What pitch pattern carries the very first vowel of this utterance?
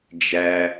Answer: low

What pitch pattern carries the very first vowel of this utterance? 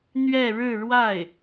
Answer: falling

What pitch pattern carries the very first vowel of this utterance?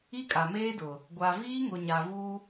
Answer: high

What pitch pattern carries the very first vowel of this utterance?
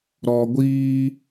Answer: low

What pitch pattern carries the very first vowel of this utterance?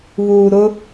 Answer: low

